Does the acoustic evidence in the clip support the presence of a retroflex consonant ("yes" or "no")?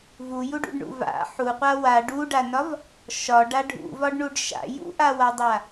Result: yes